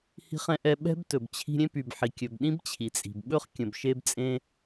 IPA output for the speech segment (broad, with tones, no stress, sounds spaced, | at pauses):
h i̤˧ χ ɛ̃˧ ʔ ɛ˧ ɓ ɛ̤˥ b t ɵ˩ b t͡ɕʰ i̤˧ ɾʲ ẽ˥ p y˩ b ħ i˩ kʲ ɵ˩ b ɗ ĩ˥ b t͡ɕʰ i˩ t͡sʼ i̤˩ b ɓ ɵ˥ χ kʲ ə̃˩ b ʃ e˧ b t͡sʼ ẽ˧